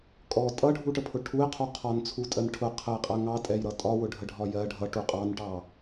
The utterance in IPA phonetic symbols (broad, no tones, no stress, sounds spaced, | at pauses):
kʼ ɔ tʼ ʌ ɖʱ u ʈ ə pʰ ʊ ʈʰ u ɪ̯ qʰ u qʰ ɒ n t͡sʰ u tʼ ɜ n ʈʰ ʊ qʰ ə ɪ̯ qʼ ɜ ŋ ɑ tʼ ɛ j ɾ ʌ tʼ ɒ w ʊ ɖʱ ə ɖʱ ɒ j ɜ ɖʱ ʌ ʈ u qʼ ɑ n ʈ ɑ